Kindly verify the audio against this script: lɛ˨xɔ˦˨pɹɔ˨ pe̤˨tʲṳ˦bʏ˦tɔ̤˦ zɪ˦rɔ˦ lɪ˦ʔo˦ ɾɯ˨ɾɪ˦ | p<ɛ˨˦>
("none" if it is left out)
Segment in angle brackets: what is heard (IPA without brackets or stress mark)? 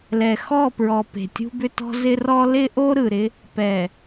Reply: ɛ˨